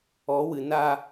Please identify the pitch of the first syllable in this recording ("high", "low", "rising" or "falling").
rising